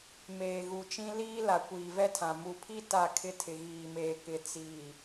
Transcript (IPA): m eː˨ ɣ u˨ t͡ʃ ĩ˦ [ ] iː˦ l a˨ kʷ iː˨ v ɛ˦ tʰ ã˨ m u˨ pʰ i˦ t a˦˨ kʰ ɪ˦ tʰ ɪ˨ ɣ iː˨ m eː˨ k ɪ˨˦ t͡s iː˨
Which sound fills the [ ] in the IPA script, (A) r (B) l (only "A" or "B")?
B